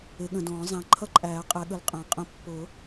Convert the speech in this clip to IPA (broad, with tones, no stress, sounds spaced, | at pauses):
ɪ˨˩˦ ɠ ə̃˨ d ɔ̃ː˨˩˦ zˤ æ̃˨ ǃʰ ʌ˥˧ ǃʼ æː˨˩˦ qʼ ɛ˨˦ ɠ ə˨˦ l qʼ æ̃˨˩˦ qʼ ə̃˨˦ pː ʊ˨˩˦